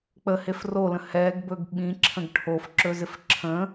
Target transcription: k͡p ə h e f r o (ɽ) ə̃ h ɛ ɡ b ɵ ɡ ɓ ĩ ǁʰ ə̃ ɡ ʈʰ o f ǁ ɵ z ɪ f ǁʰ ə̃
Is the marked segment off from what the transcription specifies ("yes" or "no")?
yes